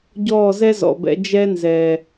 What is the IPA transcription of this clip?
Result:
ɟɔː˦˨zɛ˦zɔ̰˨bɛ̰˧ d͡ʒɛ˦nzɛ˨

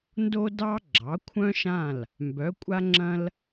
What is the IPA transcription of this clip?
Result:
ndo˧dɑ˧ ɡ͡ǁɑ˩˥kʷʰœ̃˥ʃã˥˩l | mbœ˩˥kʷʼa˥ŋ͡ǁɐ̃˥l

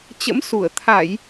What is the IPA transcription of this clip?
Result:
t͡ɕə̰˧˥msu˧˩ə̯ t̪ʰa˧˩˨j

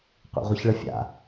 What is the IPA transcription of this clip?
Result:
qʷḛʁʷəçɭəfʲa̰

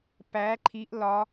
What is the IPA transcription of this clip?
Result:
pæ ǃʰiʔ lɒ

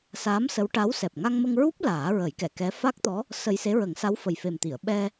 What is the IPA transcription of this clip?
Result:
sa˧˥msə˧˥wʈa˧˥w sɛ˨˩p̚ŋa˧ŋmə˧ŋɹu˦˥p̚ laː˨˩˦ɹə˨˩˦jkɛ˨˩˨ kɛ˧˥ fa˦˥k̚t̪ɔ˧˥ | sə˧j se˧˥ɹə˨˩˦ŋsa˧˥wfə˨˩j fe˨˩mt̪i˨˩˨ə̯ɓɛ˧

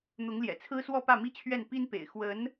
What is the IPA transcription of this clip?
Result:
n̪ʊ˧˥ŋljɛ̰˨˩t͡sʰɹ̩˥swɔ˥˧ pä˥˩mi˥t͡ɕʰɥɛ˥˩n pi˥npḛ˨˩ɪ̯ xwə˧˥n

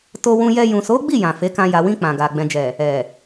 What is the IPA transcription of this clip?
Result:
to˧wũ˧jɛ˧ jũ˨so˨˦ɡ͡bi˦˨ jã˨fe˨˦kã˧ ja˨wĩ˧ k͡pã˨ɡa˨ ɡ͡bɛ̃˨d͡ʒɛ˨ | ɛ˨

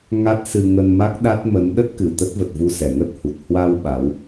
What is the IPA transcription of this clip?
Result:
ŋa˦˥t̚sɨ˧ ŋə˧nma˦˥k̚ɗa˦˥t̚mə˨˦n ɗə˦˥t̚kɨ˨˩ t̪ə˦˥t̚və˨˩t̚vu˧ sɛ˨˩ŋə˦˥t̚hu˨˩t̚ hwa˧w ɓa˨˦w

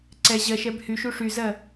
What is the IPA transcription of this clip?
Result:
ǀɛ ʑɜʃɛb hyʃu ʂyzɜ

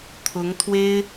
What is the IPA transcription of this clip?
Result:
t̪ʰʊ˧˥ŋt̪ʰwe˥ɪ̯

